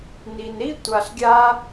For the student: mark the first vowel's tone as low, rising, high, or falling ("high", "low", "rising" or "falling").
low